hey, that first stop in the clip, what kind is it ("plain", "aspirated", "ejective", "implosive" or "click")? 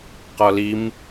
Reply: plain